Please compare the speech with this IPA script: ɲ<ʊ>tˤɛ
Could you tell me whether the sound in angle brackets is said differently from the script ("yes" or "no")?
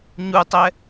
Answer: yes